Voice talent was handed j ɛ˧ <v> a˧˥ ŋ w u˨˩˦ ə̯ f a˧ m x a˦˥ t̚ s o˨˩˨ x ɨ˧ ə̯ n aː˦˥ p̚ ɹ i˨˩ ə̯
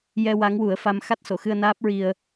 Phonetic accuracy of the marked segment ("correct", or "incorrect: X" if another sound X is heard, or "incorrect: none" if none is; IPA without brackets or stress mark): incorrect: w